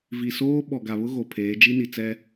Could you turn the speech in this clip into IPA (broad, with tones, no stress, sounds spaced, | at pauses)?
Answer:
v i˨ s oː˦ ɓ ɔ˨ ɡ a˨ β ʊ˦ ɣ o˨ pʰ eː˨˦ d͡ʒ i˦ n i˨ t͡s ɛ˦